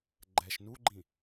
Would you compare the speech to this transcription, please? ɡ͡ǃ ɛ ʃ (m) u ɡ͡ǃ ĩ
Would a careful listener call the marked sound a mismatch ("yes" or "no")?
yes